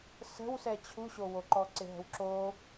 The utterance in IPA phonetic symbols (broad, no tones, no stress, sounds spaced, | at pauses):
s ə̤ w s ɛ t͡ɕʰ u ɕ o w o ǃ ɔ ǀ ɪ ɦ ə̤ w ǁ o